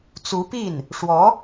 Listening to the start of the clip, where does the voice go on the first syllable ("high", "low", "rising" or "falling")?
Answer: rising